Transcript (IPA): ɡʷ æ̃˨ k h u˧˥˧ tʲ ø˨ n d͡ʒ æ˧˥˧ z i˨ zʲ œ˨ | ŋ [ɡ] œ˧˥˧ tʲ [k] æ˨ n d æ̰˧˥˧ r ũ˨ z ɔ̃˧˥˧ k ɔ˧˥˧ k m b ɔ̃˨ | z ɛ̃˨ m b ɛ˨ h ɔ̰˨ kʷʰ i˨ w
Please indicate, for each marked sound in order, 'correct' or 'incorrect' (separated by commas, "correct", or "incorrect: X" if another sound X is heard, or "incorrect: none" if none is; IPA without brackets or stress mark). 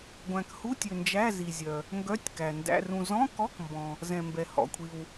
correct, correct